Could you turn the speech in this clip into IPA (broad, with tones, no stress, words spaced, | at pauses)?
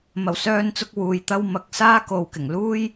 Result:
mɐ˨˩wsœː˧nt͡sʊ˧k̚ wuː˧jt̪ɐ˥w mɐ˧k̚ saː˥ko˨wkɪ˨˩ŋ luː˥j